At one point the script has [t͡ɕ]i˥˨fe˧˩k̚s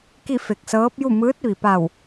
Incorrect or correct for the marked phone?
incorrect: k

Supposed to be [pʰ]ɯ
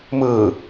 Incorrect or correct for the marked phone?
incorrect: m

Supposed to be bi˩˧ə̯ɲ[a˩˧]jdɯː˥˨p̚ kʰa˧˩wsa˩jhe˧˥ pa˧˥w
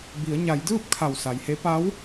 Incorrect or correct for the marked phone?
correct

